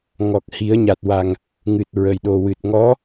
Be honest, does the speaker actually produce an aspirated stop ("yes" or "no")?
no